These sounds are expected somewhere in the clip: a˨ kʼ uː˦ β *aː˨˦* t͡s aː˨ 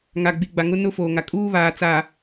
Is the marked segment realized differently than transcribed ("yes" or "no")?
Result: yes